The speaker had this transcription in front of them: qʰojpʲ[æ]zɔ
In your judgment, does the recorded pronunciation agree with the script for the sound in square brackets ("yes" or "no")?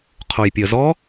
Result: no